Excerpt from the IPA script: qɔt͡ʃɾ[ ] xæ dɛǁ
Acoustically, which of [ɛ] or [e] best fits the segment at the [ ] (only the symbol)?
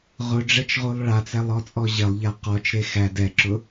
e